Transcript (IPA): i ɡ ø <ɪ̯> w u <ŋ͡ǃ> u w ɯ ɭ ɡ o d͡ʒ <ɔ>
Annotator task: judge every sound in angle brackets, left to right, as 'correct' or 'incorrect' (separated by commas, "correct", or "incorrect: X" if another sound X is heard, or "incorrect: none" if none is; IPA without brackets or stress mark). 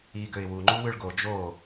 correct, correct, incorrect: o